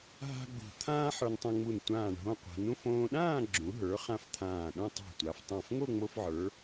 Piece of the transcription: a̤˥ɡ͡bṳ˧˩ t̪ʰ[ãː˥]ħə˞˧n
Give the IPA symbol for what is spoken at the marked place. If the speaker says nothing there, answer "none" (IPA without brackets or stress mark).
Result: ãː˥